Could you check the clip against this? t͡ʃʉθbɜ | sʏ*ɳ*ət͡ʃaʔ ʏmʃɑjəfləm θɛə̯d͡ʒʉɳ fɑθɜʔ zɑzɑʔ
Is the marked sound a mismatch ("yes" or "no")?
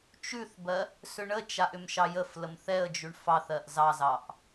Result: no